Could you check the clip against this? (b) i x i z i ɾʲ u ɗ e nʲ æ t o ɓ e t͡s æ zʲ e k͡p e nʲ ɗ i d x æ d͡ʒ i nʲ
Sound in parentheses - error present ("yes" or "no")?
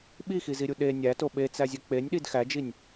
yes